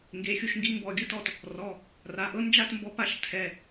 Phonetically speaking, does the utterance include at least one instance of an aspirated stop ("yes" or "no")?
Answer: yes